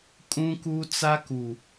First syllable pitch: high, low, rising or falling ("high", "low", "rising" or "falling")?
high